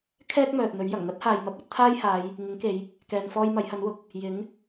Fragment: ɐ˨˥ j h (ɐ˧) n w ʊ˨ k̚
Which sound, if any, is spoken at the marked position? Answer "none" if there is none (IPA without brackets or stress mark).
ɐ˨˥